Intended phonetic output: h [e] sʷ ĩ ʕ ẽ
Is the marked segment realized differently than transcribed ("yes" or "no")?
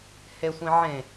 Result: no